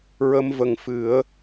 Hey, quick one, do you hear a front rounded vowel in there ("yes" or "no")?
no